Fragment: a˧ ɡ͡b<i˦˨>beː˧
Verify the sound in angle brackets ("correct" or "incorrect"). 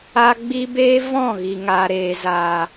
incorrect